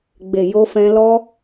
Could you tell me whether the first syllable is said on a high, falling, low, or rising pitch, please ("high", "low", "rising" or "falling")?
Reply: low